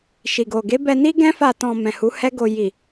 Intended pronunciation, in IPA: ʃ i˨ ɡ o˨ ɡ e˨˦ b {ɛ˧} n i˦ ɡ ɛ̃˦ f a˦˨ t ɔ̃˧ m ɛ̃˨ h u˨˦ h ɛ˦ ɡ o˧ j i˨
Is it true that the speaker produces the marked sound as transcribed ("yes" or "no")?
yes